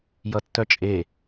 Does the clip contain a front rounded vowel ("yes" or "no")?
yes